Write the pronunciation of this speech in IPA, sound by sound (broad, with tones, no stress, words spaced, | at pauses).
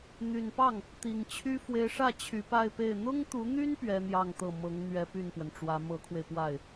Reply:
n̪y˨˩npɑ˥˩ŋ | t̪i˨˩ŋt͡ɕʰy˥ fwe˧˥ɪ̯ʂä˥˩ t͡ɕʰy˧˥pa˥˧ɪ̯pe˥˩ɪ̯ n̪ʊ˥ŋt̪u˧˥n̪y˥n pɥɛ˥n̪jɑ˥˧ŋt̪ɤ˥˩ mɤ˧˥ŋ n̪ɥɛ˧˥ py˥˩npwə˩nʈ͡ʂwä˧˥ mɤ˧˥kʰwe˧ɪ̯pwa˥˩ɪ̯